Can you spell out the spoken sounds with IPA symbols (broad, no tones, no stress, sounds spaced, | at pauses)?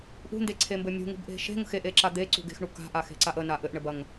ʔ ṳ n d e ǀʰ e m b ɘ mʲ ṳ ŋ ṳ b ʔ e̤ ʃ e̤ ŋ ə̤ x e ʔ e ǁ a d̪ e ǀ ṳ ɡ e̤ x ɳ u k a̤ ʔ a x e̤ ǀ a ʔ ə n a ʔ ɘ ʔ ɳ ɘ b ɐ ŋ